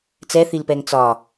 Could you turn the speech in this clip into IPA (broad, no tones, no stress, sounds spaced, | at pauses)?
t͡s ɛ θ i l p ɛ ŋ t͡s ɒ